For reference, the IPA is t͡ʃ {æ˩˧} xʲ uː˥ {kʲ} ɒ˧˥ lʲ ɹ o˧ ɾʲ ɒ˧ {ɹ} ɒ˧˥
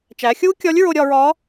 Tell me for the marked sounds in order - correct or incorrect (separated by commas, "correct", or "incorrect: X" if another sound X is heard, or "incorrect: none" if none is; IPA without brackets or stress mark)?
correct, correct, correct